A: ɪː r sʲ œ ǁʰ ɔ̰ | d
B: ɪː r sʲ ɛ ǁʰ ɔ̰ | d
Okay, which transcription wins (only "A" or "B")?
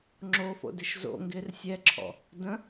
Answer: B